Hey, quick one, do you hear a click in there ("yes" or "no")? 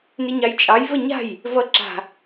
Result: yes